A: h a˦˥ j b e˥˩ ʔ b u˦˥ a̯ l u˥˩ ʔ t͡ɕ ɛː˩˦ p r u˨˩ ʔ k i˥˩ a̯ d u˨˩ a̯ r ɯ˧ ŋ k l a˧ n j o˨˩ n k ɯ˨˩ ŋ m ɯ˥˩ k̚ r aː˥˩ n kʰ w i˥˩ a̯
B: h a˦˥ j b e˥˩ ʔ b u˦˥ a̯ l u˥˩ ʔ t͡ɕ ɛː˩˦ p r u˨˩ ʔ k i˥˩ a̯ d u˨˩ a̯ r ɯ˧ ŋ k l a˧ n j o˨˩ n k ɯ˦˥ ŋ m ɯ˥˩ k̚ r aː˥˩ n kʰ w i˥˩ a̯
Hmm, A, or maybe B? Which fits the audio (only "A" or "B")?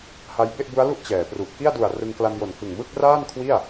A